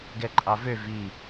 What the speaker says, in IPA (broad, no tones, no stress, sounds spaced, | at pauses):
ɡ ɛ ǃʼ ɑ v ø v i